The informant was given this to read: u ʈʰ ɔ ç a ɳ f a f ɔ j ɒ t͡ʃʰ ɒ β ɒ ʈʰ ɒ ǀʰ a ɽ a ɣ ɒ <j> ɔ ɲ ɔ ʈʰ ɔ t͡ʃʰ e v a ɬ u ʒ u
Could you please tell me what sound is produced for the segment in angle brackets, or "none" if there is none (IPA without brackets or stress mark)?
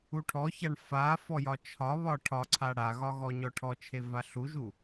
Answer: ɣ